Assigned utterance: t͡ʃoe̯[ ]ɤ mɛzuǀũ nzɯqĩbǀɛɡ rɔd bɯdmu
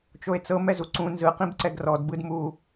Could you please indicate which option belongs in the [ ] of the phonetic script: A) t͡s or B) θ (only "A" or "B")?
A